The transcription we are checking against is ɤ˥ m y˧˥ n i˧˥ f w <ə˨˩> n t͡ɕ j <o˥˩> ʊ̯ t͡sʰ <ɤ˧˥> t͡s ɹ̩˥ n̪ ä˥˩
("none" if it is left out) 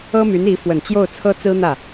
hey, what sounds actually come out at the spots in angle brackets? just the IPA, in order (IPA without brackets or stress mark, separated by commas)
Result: ə˨˩, o˥˩, ɤ˥